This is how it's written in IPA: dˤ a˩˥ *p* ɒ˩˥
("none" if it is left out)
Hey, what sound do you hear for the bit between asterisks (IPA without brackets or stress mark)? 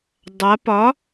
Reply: p